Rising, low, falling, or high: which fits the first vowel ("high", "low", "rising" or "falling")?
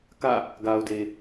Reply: falling